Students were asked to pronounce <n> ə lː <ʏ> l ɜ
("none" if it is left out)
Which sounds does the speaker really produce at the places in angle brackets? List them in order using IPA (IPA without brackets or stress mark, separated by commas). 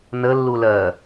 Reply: n, u